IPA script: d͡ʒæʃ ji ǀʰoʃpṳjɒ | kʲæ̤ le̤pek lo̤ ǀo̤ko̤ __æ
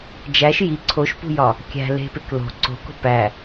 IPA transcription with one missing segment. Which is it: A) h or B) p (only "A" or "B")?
B